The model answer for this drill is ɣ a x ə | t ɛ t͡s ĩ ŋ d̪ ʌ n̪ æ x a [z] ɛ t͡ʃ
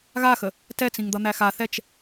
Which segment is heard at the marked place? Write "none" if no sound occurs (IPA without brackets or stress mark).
θ